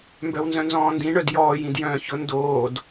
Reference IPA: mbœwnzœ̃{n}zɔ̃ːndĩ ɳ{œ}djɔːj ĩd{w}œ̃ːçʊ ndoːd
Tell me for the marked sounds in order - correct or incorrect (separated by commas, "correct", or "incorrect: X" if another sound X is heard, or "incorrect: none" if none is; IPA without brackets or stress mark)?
correct, correct, incorrect: j